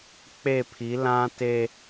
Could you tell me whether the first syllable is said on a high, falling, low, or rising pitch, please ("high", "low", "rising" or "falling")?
falling